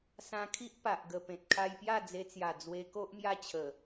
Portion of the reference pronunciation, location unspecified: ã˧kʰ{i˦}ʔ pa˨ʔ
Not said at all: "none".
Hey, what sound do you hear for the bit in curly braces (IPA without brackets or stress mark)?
i˦